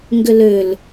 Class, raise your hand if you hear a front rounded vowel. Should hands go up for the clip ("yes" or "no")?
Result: yes